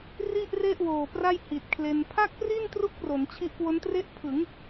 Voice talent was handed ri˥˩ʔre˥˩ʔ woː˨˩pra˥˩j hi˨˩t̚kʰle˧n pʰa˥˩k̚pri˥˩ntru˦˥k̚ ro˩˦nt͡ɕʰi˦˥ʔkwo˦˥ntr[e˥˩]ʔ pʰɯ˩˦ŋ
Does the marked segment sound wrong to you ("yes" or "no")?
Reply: no